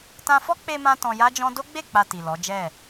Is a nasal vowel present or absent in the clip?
present